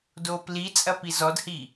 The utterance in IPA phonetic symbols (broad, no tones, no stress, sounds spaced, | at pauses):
d oː p l i t͡sʼ ɐ p i z ɔ d h i